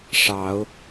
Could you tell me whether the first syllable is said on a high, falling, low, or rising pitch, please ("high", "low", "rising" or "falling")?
rising